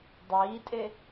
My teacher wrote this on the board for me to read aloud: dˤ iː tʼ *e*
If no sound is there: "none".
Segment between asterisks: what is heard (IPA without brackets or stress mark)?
e